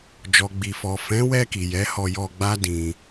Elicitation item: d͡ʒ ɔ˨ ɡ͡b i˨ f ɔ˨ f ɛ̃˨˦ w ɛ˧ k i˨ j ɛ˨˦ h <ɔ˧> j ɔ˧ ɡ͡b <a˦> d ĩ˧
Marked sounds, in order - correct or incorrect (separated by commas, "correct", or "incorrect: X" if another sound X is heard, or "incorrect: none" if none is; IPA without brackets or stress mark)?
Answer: correct, correct